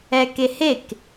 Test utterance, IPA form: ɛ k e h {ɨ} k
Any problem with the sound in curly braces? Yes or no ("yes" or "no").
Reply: yes